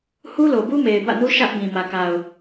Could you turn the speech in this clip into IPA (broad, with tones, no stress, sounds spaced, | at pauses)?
h u˦ l o˨ b u˦ m e˨ ɪ̯ b ä̰˦˨ n u˦ ʃ ä˦ ʔ b ĩ˨ m ä˨ k a˨ ʊ̯